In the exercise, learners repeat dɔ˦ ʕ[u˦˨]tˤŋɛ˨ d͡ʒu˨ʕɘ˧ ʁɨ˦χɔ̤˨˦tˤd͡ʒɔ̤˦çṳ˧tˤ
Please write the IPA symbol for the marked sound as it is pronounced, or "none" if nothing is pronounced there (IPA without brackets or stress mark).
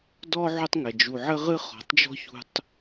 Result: u˧